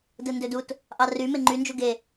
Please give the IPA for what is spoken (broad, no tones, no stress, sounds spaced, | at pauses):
d ɯ n d ø d u t | ʔ ɑ r y m e ŋ͡ǃ y n d͡ʒ u ɡ e